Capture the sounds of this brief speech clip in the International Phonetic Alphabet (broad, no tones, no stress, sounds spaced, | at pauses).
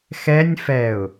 x ɛ nʲ f ɛ ʊ̯